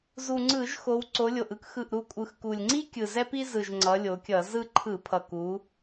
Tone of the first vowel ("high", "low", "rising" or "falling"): low